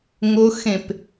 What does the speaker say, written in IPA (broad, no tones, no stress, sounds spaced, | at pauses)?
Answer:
ŋ ʊ x ẽ p